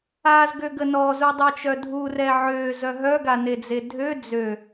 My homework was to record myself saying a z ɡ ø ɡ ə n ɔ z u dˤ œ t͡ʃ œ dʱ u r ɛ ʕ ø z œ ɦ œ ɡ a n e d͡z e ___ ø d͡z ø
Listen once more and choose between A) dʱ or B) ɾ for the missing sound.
A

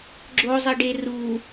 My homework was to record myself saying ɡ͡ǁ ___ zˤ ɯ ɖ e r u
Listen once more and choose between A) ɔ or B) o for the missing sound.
B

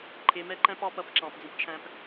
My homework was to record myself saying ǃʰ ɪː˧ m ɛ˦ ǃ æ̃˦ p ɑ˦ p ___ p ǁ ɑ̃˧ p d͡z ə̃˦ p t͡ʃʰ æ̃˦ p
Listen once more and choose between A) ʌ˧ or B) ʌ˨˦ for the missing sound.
B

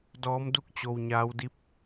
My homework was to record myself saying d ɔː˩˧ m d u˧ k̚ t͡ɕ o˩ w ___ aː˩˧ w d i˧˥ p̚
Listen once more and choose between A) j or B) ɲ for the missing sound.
B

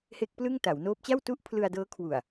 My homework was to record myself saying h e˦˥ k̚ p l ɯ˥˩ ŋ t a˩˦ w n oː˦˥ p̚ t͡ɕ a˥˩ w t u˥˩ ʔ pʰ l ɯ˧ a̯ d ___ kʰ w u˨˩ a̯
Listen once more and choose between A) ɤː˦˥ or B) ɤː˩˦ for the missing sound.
A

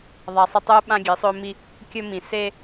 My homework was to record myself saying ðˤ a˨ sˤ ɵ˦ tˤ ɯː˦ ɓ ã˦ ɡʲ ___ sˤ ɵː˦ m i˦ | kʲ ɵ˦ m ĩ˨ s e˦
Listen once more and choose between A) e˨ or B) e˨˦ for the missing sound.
B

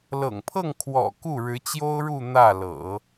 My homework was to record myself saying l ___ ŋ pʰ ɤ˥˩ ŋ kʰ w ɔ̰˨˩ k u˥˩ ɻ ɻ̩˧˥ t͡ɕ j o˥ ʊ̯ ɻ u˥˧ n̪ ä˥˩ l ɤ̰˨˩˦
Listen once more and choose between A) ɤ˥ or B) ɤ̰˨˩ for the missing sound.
B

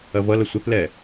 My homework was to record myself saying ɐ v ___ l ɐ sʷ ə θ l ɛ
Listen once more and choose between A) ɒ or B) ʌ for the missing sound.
B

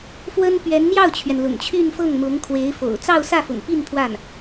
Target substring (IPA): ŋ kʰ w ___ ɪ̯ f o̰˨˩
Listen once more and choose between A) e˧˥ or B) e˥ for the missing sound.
A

